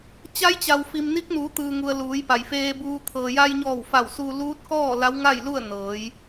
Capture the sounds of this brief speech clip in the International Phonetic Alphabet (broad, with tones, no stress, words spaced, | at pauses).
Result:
t͡ɕa˧˥jt͡ɕa˩wfi˩m ni˧˥k̚nuː˩˧t̪ɯː˩ŋu˩ə̯ luː˩˧jpa˩jfeː˧buː˧ t̪ʰɤː˩ja˧jɲɔː˧˩w fa˧˩wsu˧ luː˧˥t̚kɔː˥˨ la˧˥wŋa˥˨jlu˥˨ə̯ nɤː˩˧j